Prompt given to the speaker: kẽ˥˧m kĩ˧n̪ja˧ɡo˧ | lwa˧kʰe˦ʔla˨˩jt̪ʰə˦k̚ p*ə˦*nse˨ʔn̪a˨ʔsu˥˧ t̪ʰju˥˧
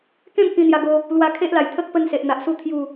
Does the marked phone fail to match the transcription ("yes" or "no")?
no